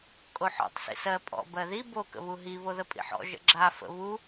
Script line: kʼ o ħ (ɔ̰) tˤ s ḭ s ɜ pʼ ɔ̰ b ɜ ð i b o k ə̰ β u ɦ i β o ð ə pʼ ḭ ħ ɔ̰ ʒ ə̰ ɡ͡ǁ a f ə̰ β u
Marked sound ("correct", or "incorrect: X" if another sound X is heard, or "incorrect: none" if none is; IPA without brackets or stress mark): correct